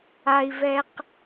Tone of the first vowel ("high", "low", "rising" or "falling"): low